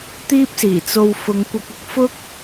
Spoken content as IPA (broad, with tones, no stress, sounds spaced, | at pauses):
t̪ iː˥ p̚ s iː˨˩ t͡s o˧ w f ʊ˨˧ ŋ kʷ ɐ˧ k̚ ɪ˨˥ k̚ f ʊ˥ k̚